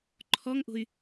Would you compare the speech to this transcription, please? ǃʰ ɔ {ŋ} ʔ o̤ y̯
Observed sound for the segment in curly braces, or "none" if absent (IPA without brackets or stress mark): ŋ